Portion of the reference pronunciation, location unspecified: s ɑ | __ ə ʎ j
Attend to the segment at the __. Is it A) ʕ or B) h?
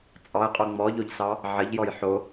A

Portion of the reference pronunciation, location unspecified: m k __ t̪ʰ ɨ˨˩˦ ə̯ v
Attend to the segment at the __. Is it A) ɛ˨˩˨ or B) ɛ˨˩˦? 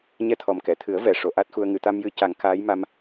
A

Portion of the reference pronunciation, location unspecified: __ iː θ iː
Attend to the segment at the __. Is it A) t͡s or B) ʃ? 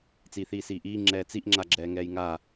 A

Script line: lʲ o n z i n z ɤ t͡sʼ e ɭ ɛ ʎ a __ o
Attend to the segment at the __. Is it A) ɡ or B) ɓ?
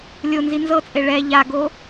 A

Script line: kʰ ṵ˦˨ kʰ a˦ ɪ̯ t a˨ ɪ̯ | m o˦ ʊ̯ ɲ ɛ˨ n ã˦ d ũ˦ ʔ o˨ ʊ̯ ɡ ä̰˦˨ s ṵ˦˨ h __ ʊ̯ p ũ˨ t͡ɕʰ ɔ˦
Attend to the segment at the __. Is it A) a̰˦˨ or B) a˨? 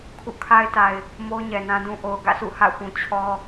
A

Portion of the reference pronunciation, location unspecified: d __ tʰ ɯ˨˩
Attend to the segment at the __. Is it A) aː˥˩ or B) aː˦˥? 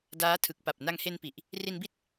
B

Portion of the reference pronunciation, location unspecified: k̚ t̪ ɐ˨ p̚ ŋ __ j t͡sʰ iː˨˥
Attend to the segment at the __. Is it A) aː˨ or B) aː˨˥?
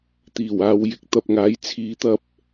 B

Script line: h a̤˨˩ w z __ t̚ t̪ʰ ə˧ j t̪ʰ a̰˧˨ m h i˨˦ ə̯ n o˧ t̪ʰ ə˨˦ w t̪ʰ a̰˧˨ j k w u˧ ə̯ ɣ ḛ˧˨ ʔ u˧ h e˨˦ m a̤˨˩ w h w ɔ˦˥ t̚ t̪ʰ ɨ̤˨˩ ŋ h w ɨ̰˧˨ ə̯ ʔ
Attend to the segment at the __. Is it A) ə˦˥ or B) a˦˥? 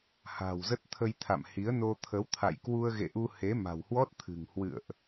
A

